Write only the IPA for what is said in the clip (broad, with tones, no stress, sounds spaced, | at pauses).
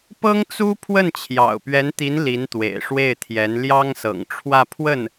p ɤ˥ ŋ t͡s u˥ pʰ w ə˥˩ n t͡ɕʰ j ɑ̰˨˩ ʊ̯ p ɥ ɛ˧˥ n t̪ i˧˥ n l i˧˥ n t̪ w ḛ˨˩ ɪ̯ ʂ w e˥˩ ɪ̯ t̪ʰ j ɛ˧˥ n l j ɑ˥ ŋ s ɤ̰˨˩ ŋ ʈ͡ʂʰ w ä˥˧ pʰ w ə˥˩ n